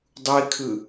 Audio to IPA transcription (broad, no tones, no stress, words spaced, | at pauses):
dˤui̯kʰɯ